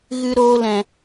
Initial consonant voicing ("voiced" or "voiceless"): voiced